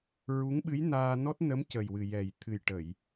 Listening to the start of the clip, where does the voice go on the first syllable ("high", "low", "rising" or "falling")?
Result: rising